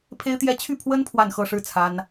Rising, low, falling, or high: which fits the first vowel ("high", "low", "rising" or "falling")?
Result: high